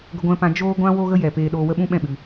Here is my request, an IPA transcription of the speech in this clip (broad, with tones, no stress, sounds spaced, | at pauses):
ɡ ə˦ ɡʷ ɛ̃˦ p ã˦ d͡ʒ oː˦ ɡʷ ã˦ w o˦ ɣ ə˦ j ɛ˨ p eː˧ ɗ oː˧ w ə˦ ɓ ũ˦ ɓ ɛ̃˦˨ ɓ ɨ˨